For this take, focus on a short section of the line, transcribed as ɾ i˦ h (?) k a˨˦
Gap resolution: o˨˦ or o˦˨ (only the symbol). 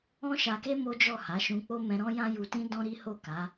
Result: o˦˨